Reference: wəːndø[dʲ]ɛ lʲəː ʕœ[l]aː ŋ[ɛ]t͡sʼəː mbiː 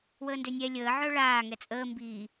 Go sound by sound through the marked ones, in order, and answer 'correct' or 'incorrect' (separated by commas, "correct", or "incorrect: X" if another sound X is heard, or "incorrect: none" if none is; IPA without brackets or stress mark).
incorrect: nʲ, incorrect: ɭ, correct